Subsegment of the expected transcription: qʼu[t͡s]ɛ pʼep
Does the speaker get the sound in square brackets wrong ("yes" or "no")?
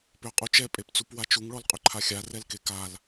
yes